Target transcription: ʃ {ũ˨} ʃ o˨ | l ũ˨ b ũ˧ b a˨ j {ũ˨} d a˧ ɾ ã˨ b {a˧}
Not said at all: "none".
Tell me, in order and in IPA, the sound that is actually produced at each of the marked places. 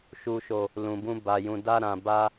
u˨, ũ˨, a˧

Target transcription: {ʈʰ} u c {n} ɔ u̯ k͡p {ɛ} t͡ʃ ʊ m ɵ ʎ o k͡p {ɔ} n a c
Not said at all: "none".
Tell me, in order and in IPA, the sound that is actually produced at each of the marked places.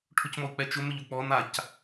ʈʰ, m, ɛ, ɔ

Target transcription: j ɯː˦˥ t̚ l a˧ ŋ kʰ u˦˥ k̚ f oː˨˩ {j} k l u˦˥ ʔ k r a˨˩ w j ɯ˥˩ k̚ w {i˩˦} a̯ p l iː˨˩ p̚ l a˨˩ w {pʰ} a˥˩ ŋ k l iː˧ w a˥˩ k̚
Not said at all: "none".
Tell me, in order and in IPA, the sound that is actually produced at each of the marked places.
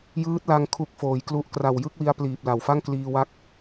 j, i˧, f

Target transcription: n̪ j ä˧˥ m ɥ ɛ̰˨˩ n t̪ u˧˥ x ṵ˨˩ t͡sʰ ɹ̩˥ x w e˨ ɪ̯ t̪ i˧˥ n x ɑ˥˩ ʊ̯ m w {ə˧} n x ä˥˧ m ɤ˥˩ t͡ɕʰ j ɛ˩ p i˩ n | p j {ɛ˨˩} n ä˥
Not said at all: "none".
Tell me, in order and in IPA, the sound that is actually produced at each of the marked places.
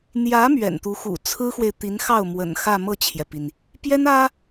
ə̰˨˩, ɛ˥

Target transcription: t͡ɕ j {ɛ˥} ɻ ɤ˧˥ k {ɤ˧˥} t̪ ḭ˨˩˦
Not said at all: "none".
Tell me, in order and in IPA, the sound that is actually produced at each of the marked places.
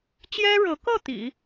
ɛ˥, ɤ˥˩

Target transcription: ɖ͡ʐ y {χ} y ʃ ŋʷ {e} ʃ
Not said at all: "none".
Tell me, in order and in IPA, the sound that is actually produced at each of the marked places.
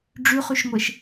χ, e

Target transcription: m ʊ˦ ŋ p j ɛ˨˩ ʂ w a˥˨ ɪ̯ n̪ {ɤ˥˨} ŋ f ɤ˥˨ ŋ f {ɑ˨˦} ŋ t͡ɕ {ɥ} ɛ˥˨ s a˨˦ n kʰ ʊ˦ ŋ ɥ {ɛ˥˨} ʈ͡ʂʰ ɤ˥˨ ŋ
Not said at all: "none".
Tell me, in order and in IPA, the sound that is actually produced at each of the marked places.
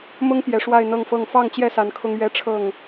ɤ˥˨, ɑ˥˨, j, ɛ˥˨

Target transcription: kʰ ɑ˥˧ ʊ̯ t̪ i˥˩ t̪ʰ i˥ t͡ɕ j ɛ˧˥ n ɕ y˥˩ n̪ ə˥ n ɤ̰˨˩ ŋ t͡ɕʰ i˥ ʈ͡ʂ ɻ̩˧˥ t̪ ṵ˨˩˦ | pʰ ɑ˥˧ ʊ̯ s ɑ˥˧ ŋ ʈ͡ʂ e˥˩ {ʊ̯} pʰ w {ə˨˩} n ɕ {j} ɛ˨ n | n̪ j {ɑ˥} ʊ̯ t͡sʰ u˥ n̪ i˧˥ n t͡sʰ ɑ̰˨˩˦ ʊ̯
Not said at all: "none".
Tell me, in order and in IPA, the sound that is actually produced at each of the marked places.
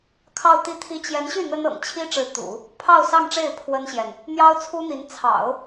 ɪ̯, ə˥, j, ɑ˥

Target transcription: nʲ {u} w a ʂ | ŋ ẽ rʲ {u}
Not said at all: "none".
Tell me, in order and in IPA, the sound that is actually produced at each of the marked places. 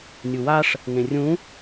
u, ũ

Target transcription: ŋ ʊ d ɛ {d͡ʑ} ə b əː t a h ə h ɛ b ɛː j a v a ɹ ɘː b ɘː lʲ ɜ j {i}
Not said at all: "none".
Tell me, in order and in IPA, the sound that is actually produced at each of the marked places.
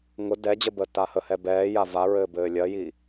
d͡ʑ, i

